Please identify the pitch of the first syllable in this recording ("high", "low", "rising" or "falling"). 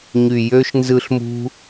low